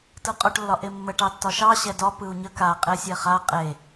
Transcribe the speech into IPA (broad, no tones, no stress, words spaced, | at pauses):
tɯqʼoʈ lːɒʔemːə ʈɑtːɒʃɑ ɕɛdɒ pɯu̯ɲə ka qʼesʲɛχa qʼe